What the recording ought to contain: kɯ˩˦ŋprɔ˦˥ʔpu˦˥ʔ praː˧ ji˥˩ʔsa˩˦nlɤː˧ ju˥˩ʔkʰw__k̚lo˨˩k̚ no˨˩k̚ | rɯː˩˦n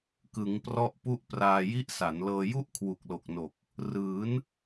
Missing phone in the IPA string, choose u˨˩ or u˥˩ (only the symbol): u˨˩